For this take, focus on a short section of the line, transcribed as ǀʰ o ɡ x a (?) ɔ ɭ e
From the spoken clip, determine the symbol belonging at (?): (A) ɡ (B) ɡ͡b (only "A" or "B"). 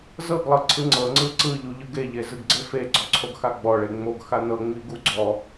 B